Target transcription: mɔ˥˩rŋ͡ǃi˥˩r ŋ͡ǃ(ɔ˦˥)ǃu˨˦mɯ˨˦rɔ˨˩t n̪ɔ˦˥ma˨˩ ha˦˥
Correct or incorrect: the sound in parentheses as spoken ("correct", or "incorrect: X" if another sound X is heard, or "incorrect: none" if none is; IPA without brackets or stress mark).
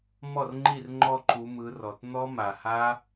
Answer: incorrect: ɔ˥˧